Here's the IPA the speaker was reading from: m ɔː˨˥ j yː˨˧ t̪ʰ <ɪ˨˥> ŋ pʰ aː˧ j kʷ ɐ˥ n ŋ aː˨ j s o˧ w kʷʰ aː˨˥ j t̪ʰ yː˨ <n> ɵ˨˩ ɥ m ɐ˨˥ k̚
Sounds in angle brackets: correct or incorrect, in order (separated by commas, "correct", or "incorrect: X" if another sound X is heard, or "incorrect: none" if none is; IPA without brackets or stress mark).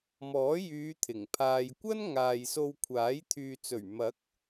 incorrect: ɪ˨˩, incorrect: t͡s